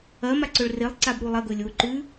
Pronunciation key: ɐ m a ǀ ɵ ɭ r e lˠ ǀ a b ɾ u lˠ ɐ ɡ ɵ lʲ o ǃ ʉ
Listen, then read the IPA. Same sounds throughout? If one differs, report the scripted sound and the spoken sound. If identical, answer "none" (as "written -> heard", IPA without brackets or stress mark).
none